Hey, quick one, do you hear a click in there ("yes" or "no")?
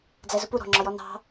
yes